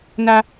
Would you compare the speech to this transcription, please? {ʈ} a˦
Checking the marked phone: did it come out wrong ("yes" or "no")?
yes